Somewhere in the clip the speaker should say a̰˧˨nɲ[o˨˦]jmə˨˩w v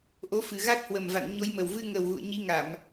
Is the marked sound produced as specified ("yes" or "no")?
yes